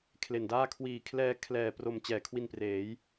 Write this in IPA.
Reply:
kʰ l e˨˩ n d aː˥˩ kʰ w iː˨˩ kʰ l ɛː˧ kʰ l ɛː˨˩ p r o˨˩ m t͡ɕ ɛː˨˩ kʰ w i˧ n p r eː˩˦ j

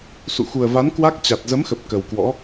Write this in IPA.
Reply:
s ṵ˧˨ x u˨˩ ə̯ v a˨˦ n k w a˦˥ k̚ t͡ɕ a˨˩ t̚ z ə˨˦ m x ə˨˩ p̚ k ə˨˩ w k w ɔ̰˧˥

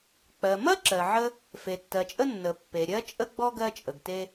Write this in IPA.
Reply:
k͡p ɜ˩ m ɐ˥ ǁ ɜ˩ ʕ ə˥ | f e˩ tː ɜ˩ t͡ʃʼ ə˥ nː ə˩ pː e˩ ɾʲ ɜ˥ t͡ʃʼ ə˥ ɡ͡b ɔ˥ ɡ ɜ˥ t͡ʃʼ ə˩ ɡ t e˥

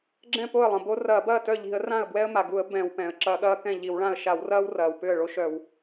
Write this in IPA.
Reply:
ɡ͡ǁ ɛ̃˥˩ p o˥˩ ə̯ lˠ ɐ̃˩ b o˦ r ɐː˧˩˧ b ɐː˥˩ t œ˥˩ ʎ i̤˧˩˧ ə̯ r ã˥˩ ə̯ b w ɛ˦ ə̯ m a˩ ɡ u˧˩˧ ə̯ b ɛ̃˧˩˧ w p ɛ̃˩ ə̯ ǁ ɐ˧˩˧ ɠ ɐː˦ k ɛ̃˥˩ ʎ i˧˩˧ w ɭ ã˥˩ ə̯ ʃ a˧˩˧ w r ɐː˦ w r ɐː˩ w p ʏ˥˩ ə̯ ɭ o˦ ʃ œ˧˩˧ w

